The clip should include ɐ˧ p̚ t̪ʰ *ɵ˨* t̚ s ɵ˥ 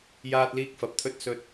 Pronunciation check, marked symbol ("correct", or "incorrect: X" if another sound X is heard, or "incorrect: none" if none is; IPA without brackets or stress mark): incorrect: ɵ˥